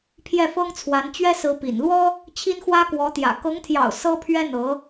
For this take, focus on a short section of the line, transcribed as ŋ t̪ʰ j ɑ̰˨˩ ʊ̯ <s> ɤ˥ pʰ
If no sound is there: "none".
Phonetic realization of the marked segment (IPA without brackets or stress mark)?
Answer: s